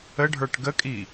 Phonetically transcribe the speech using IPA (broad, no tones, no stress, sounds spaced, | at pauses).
ə ɖʱ ə˞ ʈ ɡ ə kʼ i